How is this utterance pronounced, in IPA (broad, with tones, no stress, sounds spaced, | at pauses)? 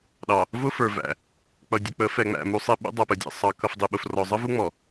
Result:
ɗ ɑ˨ | v ʊ˦ f ə˞˨ v æ̰˨ | k͡p ʌ˨ dʲ ə˨ k͡p ə˨˦ f ɛ˨ ŋ͡m æ̰˨ m u˦ sˤ i˦ ɓ ṵ˦ dˤ ʌ˨ p ə˨ dʲ æ̰˨ sˤ ɑ˨ k ʌ˨ f dˤ i˨ ɓ ʊ˨ f r ɔ˨ zˤ ə˦ v u˦ ŋ͡m ɔ˨